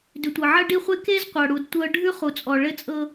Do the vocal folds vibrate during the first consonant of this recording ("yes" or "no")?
yes